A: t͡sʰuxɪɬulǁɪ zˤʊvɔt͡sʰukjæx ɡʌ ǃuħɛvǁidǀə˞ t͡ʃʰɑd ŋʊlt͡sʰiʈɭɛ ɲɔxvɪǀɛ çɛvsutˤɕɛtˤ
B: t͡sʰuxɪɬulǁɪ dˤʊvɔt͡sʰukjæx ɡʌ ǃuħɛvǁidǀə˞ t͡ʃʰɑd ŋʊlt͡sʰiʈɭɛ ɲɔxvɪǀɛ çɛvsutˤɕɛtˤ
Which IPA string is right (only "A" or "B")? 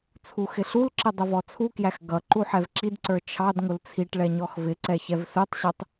B